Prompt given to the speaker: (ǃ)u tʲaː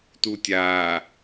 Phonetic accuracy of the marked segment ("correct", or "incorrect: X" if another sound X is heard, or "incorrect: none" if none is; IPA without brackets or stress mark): incorrect: t